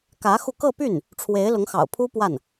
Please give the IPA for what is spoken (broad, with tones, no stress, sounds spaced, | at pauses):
k ä˧˥ x u˧ k ɤ˥˧ p y˥˩ n | ʈ͡ʂʰ w e˧˥ ɪ̯ l ʊ˧˥ ŋ x ɑ̰˨˩ ʊ̯ pʰ u˥ p w a˥˩ n